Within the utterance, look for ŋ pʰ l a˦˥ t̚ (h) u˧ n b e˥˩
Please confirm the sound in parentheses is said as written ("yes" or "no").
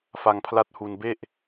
yes